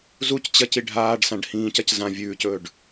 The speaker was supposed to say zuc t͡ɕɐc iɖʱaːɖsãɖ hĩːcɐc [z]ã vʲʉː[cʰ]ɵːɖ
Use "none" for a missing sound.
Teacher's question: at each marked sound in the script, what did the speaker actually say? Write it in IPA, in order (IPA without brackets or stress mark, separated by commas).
z, c